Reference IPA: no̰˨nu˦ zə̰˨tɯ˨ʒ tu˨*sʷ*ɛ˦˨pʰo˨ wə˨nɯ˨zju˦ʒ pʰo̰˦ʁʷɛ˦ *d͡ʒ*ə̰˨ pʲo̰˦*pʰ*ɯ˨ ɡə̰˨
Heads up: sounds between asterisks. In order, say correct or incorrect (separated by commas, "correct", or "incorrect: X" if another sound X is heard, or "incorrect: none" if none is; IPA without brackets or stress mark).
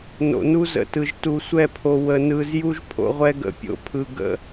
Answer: correct, incorrect: ɡ, correct